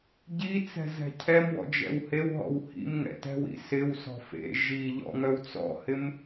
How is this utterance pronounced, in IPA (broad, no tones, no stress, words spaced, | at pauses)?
ɟit͡sɛ̤ zɛ̤cʰɛmwɔ̰ d͡ʒɛ̰whewɦɔ̰w hḭm ŋɛ̰tɛ̤wḭ sɪw sɔ̤fḛ ʒiʎɔ̰ŋœw t͡sɔ̰hɪm